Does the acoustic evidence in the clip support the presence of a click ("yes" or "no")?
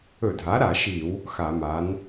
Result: no